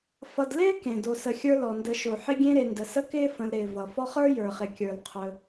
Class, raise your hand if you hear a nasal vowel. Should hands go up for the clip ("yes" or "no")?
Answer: yes